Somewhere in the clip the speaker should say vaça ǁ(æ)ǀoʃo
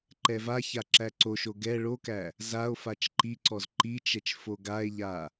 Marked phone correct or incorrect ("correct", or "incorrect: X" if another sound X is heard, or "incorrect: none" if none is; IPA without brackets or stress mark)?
correct